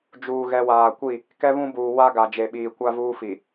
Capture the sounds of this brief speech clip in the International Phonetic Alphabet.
d͡ʒ uː˨ ɣ ɛ˨ w aː˨ kʷ i˦˨ | k ɛ˦ β ũ˦ b uː˨ w a˦ ɡ a˨ d͡ʒ e˨ ɓ iː˨ kʷ a˦ v uː˦ f i˨

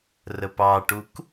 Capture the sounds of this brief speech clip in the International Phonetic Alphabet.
r ə p ɑ ʈ u k

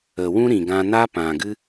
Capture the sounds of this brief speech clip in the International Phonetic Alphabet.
ə˨ w ũ˦ ɾ ĩ˨ ɡ ã˧ n a˦ p ã˨ ɡ ɨ˦

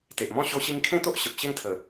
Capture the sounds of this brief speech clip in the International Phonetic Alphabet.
t̪ e˨ ʔ m ɔ̃˥˧ ɕ o˧ ɕ i˧ ŋ kʰ ẽ˥˧ t̪ o˦ ʔ ɕ ə˨ p̚ ɕ e˥˧ ŋ t̪ʰ ə˨˩

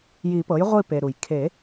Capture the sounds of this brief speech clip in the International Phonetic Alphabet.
j i˨˩˦ p ɤ˩˥ j ʁʷ i˦˨ p e˩ ɾ u˩ j kʰ e˨˩˦

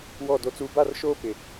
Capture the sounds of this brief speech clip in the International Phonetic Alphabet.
w ɔ˦˨ d o˦ t͡s uː˦ b a˦˨ r ʃ oː˦ p ɪ˦

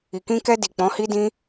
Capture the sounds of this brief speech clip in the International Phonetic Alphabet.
i˨ k ĩ˧ k ɛ˧ d i˨ k͡p ɔ̃˨˦ h i˦ d ĩ˦

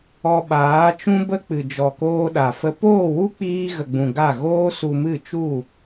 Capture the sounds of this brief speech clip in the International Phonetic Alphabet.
ɔ˧ ɓ aː˨˦ t͡ʃ ũ˦ b ə˦ k͡p ɨ˨ d͡ʒ ɔ˨ k oː˧ ɗ a˨ f ə˧ p oː˦˨ w u˦ k͡p iː˧ ɣ ə˨ ɡ͡b ũ˨ ɡ a˦˨ ɣ oː˦ s u˧ m ɨ˦˨ t͡ʃ u˦˨

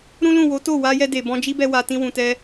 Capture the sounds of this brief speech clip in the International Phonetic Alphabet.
ɾ ũ˦ l ũ˦˨ w o˨˦ t o˦˨ w a˧ j ɛ˧ d e˨ b ɔ̃˧ d͡ʒ i˦ b ɛ˧ w a˨ t ĩ˧ w ũ˨ t ɛ˧

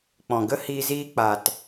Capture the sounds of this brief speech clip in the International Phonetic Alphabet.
k͡p ɔ̃˨ ɡ ə˦ h iː˧ z iː˧ k͡p a˨ t

